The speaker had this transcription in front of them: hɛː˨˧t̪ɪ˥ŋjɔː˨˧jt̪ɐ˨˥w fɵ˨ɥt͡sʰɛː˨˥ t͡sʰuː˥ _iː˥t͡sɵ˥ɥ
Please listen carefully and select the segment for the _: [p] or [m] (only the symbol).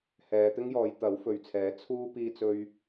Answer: p